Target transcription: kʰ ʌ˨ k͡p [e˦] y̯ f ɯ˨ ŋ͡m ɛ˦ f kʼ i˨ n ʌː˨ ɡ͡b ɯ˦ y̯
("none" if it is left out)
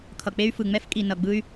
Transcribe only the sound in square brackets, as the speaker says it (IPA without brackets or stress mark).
e˦